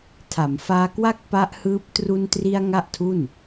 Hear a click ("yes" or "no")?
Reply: no